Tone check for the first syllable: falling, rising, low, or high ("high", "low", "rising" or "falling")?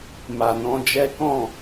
low